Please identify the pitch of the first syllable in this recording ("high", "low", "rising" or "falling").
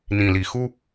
low